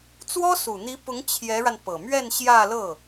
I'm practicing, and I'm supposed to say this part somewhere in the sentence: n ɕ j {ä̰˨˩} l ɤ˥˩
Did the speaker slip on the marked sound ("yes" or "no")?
yes